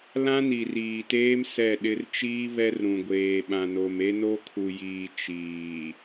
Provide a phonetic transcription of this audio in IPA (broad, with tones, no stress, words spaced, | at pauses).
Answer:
lã˦ni˨riː˨teː˦m sɛ˦˨ɗɪ˦r t͡ʃiː˦ βɛ˦rɾũ˨ɡʷeː˨ ɓã˨no˨me˦ no˦kʰu˨jiː˨ t͡ʃiː˨